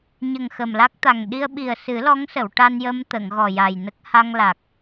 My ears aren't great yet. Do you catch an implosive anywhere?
yes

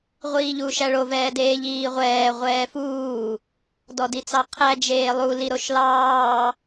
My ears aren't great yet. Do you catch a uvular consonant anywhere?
yes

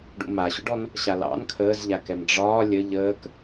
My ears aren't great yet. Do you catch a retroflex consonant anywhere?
yes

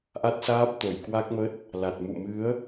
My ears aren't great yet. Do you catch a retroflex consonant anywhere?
no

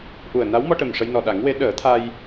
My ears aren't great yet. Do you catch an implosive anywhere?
yes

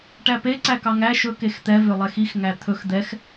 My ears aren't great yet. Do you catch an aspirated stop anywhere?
yes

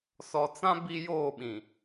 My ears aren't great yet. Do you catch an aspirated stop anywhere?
no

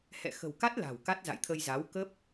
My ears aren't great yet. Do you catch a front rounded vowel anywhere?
no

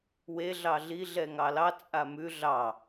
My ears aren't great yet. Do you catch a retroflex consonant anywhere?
no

